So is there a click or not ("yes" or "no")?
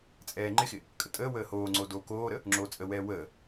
yes